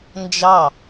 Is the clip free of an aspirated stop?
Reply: yes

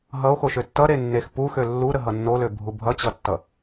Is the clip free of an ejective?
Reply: yes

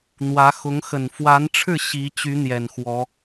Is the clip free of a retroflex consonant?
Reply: no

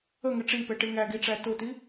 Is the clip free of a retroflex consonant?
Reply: no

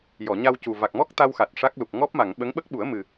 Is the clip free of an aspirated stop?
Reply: yes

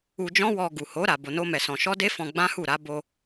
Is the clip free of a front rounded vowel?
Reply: yes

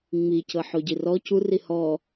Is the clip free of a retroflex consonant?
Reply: yes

